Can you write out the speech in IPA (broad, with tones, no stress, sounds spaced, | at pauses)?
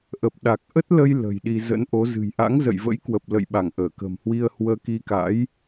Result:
ʔ ə˨˩ p̚ ɗ a˨˩ k̚ ʔ ə˦˥ t̚ l ə˧ j l ə̤˨˩ j ɗ i˧ z ə̰˧˥ n ʔ o˨˦ z ɨ̤˨˩ j ʔ a̰˧˥ ŋ z ə̰˧˨ j v ə̰˧˥ j k w ə˨˩ p̚ l ə̰˧˨ j ɓ a˧˩ ŋ ʔ əː˧˩ k ə̤˨˩ m h w i˧ ə̯ h w əː˧ k i˧ k a̰˧˥ j